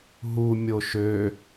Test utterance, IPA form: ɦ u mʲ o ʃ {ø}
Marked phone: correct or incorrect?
correct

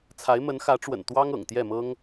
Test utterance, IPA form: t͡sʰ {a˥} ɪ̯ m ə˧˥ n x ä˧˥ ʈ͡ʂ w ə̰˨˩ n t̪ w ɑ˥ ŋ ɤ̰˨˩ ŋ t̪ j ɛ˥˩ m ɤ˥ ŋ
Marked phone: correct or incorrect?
incorrect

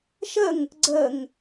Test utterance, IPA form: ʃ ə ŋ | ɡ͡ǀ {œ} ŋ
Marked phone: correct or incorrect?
incorrect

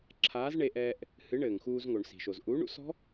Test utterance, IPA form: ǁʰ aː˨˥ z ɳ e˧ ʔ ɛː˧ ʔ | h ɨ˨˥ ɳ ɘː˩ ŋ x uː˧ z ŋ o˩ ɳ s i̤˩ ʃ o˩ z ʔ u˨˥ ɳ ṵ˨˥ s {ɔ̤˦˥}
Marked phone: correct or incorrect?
correct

